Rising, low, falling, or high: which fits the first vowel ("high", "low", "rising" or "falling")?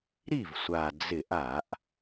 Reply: falling